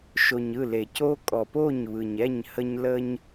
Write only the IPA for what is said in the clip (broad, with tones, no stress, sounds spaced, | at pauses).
ʃ o˨ ɲ ɯ˦˨ l e˨ c o˦ kʼ ɔ˨ p o˦˨ ɲ β ɯ˨ ɲ ɛ˦˨ ɲ h ə˦ ɲ l ə˦ ɲ